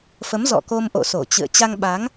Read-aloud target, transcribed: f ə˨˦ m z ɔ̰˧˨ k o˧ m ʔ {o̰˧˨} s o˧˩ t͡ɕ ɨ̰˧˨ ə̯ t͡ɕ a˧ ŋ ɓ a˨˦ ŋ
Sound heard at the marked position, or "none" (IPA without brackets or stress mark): o̰˧˨